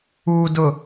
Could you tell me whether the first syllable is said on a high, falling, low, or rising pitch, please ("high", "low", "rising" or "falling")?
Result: low